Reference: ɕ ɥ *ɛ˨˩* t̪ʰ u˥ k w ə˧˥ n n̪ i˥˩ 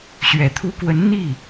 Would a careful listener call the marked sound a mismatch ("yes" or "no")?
no